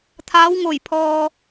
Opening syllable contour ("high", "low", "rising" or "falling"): rising